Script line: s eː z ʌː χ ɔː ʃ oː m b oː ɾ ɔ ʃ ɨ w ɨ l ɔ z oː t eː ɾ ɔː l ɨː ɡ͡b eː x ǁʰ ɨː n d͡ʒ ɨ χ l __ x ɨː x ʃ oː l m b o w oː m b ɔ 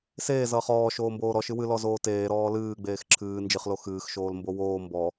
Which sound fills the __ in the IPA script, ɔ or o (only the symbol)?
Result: o